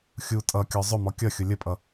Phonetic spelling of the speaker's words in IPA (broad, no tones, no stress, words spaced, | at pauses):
xʲu tʼʌ kʲɔzˤʊmɔ kʲʌxʲʊ lʲəpʼʌ